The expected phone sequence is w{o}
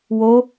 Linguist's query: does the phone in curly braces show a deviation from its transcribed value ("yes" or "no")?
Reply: no